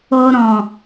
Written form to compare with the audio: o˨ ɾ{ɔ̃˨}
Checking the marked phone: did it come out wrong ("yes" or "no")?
no